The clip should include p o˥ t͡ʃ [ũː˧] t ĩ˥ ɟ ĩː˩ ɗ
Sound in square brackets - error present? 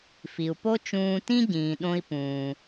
no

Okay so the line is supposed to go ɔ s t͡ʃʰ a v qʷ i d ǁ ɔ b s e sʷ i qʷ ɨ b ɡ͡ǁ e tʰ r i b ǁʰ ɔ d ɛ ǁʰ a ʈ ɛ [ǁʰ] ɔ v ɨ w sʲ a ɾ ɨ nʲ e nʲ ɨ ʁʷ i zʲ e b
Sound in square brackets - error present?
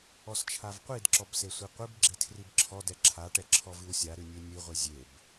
no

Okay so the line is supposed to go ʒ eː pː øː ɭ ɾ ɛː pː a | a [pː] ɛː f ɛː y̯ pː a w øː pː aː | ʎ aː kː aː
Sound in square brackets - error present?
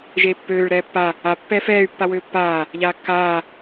no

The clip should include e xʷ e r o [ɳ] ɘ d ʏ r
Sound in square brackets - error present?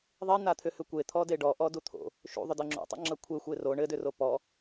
no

